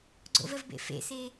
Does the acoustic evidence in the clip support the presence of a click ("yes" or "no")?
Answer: yes